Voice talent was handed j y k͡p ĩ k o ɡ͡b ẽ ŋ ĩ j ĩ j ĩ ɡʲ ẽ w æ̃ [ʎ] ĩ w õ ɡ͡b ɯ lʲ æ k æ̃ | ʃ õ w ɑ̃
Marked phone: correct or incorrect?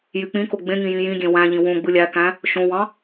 correct